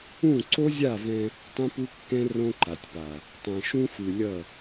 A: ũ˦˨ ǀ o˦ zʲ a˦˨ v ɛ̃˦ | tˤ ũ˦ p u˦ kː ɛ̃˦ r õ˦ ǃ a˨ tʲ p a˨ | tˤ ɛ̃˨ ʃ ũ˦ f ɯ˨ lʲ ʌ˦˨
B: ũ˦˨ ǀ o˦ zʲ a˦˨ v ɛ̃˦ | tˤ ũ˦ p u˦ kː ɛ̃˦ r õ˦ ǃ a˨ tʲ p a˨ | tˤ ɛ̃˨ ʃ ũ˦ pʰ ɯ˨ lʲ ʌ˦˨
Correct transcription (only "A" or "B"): A